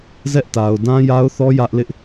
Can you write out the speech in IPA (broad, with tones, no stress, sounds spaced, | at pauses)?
z ɛ˦ ʔ t a˨ ʊ̯ d ã˦ j a˦ ʊ̯ θ ɔ˦ j ä˦ ʔ l ɪ˦ ʔ